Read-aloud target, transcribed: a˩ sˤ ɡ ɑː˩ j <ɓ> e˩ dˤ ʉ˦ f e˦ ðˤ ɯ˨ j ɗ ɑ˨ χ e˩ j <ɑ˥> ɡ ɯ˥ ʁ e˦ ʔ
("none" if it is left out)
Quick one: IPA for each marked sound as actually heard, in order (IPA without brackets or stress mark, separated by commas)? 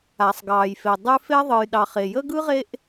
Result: f, ə˥